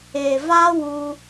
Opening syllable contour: low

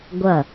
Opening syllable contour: falling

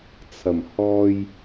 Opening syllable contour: low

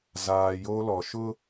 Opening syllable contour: low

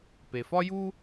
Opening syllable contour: low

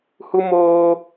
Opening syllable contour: high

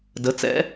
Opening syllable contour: rising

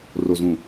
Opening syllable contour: low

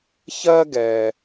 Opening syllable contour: high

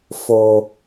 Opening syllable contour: low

